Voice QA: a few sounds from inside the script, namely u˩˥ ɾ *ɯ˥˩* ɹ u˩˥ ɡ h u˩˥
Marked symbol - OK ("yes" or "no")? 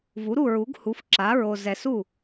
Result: no